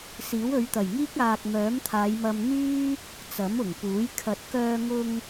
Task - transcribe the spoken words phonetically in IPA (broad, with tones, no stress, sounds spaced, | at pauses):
s iː˨˥ w ɵ˨˧ ɥ t̪ ɐ˨˩ j ŋ iː˥ k̚ aː˨ k̚ m œː˨˥ m t̪ʰ aː˨˧ j m ɐ˧ m n̪ yː˥ | t͡s ɐ˨˥ m ʊ˨˩ ŋ p uː˨˥ j kʰ ɐ˨ t̚ k œː˧ ŋ ʊ˧ ŋ